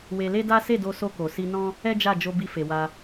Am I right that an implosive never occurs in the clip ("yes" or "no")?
yes